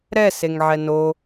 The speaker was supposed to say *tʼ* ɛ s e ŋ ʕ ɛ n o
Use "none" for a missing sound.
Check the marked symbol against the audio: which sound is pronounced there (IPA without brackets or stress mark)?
ɾ